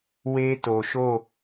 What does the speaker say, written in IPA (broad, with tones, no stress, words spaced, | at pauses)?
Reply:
we˦to˨ʃo˦˨